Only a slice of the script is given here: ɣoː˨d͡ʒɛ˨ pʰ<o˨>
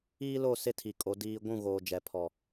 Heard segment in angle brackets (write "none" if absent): ɔ˨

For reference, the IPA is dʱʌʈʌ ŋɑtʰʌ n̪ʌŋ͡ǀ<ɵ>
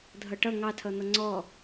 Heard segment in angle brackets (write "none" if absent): ɔ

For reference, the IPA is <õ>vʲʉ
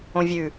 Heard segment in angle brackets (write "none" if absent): õ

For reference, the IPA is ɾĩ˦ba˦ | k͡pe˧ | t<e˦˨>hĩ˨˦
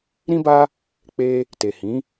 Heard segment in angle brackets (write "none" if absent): e˨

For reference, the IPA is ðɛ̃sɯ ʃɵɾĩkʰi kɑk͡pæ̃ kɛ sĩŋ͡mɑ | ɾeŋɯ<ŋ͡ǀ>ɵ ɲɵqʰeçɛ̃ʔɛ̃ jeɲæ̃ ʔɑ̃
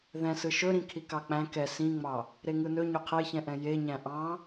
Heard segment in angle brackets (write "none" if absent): n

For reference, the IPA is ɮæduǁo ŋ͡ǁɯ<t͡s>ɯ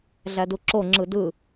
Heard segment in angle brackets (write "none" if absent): d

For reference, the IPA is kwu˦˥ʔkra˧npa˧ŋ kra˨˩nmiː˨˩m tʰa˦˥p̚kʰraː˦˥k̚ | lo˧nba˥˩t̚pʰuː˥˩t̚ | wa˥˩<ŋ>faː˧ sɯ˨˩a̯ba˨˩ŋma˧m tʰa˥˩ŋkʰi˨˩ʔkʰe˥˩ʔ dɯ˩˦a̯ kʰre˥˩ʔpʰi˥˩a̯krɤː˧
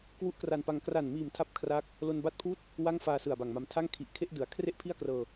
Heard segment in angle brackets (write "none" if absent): ŋ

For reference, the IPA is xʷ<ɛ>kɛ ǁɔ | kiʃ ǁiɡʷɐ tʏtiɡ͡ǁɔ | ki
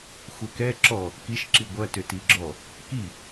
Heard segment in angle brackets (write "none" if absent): ɛ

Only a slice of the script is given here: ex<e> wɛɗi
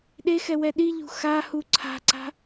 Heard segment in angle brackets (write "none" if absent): ɛ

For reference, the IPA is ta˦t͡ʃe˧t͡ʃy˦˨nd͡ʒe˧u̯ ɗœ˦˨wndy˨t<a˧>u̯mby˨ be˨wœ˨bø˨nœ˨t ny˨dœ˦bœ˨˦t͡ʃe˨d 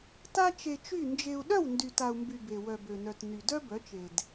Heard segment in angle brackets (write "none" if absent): a˨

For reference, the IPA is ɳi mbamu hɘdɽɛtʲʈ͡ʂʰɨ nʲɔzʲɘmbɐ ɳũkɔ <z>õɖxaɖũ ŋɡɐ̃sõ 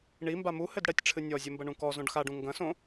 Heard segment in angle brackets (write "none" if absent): z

